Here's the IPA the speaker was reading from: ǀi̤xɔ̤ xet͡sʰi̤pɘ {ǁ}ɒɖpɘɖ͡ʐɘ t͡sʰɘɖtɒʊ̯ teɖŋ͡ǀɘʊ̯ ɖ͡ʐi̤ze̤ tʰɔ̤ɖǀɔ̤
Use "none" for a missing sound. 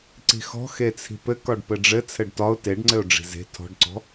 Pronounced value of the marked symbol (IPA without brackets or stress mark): k